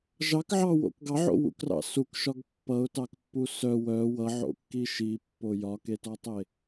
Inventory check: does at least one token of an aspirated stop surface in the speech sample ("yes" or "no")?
no